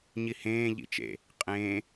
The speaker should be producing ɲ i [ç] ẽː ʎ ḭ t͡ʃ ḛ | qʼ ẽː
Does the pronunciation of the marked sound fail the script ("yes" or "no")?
yes